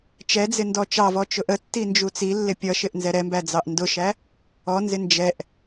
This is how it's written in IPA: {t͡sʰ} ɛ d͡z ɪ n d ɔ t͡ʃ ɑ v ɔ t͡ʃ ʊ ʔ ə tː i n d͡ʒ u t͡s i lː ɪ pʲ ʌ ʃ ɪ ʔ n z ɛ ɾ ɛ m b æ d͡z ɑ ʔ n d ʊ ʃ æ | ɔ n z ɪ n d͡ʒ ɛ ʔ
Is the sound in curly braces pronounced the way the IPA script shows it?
no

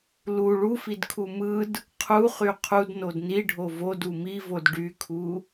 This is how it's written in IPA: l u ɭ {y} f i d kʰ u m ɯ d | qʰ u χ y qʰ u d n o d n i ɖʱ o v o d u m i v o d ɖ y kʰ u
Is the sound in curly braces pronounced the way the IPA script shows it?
no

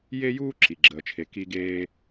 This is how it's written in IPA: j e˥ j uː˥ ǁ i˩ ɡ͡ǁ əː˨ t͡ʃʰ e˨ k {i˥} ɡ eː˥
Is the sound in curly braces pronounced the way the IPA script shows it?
yes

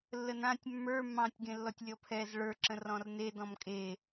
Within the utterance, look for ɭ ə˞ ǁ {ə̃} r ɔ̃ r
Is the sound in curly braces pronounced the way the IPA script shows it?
yes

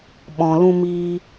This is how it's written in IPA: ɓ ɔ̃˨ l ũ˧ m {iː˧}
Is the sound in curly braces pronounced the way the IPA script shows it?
yes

